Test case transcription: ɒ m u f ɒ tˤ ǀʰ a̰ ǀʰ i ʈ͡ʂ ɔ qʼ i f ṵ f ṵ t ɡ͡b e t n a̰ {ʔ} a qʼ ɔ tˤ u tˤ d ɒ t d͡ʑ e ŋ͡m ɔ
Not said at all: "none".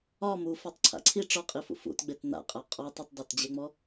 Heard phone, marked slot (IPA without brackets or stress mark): qʼ